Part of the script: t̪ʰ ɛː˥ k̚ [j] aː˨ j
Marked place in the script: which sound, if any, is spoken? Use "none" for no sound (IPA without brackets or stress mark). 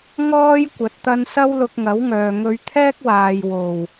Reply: w